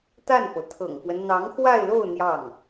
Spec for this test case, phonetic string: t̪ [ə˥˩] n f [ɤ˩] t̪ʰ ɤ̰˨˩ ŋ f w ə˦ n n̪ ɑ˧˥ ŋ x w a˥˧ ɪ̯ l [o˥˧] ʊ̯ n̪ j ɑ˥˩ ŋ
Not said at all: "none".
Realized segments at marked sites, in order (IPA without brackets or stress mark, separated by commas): a˥˩, ɤ˩, o˥˧